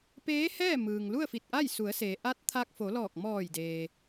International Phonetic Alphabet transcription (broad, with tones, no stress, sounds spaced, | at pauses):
p eː˧˥ h ɛː˥˨ m ɯː˩ ŋ l u˥˨ ə̯ f i˧˩ t̚ ʔ a˥˨ j s u˩˧ ə̯ s e˩ ʔ a˧˥ t̚ t̪ʰ a˧ k̚ f o˩˧ l ɔː˧˩ k̚ m ɔː˧˩ j d eː˩